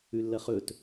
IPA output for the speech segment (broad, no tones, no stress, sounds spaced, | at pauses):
ʉ lː ɐ χ ɵ t